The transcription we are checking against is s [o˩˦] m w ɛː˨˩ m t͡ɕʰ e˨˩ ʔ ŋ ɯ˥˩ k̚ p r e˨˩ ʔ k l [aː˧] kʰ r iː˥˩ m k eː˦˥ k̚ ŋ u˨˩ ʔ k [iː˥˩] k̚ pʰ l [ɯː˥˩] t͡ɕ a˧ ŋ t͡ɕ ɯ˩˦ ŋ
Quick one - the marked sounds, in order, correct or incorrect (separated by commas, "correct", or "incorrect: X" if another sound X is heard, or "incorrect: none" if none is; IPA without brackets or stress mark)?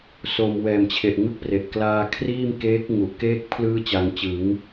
incorrect: o˨˩, correct, incorrect: eː˥˩, correct